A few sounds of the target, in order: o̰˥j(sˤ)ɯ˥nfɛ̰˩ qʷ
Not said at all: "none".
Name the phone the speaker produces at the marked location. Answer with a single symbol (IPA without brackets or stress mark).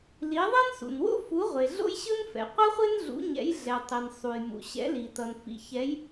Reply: ɕ